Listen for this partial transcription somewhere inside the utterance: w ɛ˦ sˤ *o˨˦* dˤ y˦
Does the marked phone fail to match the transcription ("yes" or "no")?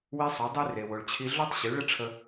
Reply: no